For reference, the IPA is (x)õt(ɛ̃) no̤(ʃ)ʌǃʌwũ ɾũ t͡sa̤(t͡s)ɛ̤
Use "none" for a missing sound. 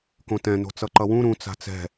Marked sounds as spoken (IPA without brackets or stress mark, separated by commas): k, ɛ̃, t͡s, t͡s